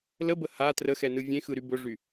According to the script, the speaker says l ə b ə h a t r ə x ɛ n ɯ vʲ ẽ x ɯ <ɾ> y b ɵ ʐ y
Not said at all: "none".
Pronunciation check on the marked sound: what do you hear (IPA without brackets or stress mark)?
ɾ